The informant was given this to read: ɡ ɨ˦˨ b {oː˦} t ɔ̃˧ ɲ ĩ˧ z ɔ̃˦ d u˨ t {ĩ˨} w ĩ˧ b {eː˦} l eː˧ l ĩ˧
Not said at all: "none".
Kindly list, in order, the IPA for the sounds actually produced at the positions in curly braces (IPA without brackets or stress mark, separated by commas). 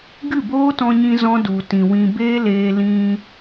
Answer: oː˦, ĩ˨, eː˦